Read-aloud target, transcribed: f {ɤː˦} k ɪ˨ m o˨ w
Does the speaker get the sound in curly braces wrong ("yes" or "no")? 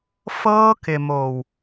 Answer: no